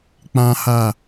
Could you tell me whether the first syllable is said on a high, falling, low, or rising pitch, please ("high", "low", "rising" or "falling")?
high